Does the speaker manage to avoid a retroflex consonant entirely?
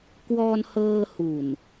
yes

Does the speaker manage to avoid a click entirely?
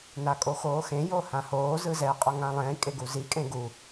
yes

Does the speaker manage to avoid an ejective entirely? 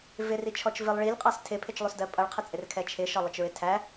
no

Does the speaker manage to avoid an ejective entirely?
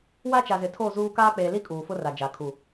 no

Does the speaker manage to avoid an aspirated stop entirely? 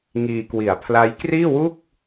no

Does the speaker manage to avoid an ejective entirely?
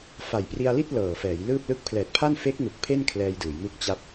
yes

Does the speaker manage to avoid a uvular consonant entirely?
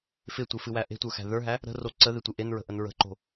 yes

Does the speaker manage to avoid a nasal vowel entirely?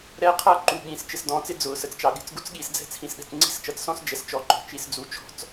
no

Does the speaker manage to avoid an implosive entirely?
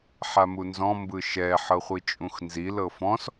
yes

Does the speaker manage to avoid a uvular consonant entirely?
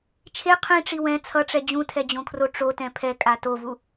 no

